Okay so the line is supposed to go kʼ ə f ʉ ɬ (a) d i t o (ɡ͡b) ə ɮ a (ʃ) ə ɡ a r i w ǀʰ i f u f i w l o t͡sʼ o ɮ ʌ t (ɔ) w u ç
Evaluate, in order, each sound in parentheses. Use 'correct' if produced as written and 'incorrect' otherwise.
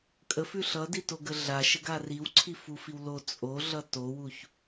incorrect: ʌ, incorrect: ɡ, correct, incorrect: o

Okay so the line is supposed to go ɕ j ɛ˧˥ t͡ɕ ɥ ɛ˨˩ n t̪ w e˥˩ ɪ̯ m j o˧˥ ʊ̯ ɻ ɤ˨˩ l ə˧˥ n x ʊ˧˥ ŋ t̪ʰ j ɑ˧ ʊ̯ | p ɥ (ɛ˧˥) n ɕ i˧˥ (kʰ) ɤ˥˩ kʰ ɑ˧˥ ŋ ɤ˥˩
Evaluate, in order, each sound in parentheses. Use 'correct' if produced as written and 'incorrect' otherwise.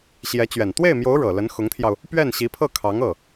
incorrect: ɛ˥˩, incorrect: pʰ

